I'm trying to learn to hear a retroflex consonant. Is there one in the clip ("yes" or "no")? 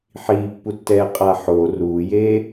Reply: no